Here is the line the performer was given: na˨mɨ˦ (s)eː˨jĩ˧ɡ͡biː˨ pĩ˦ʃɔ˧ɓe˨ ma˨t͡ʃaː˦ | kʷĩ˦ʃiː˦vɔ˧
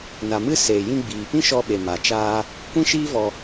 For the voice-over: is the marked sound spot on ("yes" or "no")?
yes